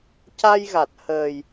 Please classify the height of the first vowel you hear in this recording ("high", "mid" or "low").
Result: low